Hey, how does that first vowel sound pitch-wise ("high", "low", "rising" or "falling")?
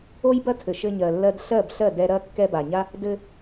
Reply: high